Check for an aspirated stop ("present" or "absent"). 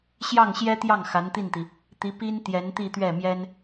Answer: absent